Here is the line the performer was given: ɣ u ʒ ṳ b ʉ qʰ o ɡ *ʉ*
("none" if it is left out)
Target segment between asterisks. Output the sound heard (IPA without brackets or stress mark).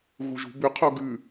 ʉ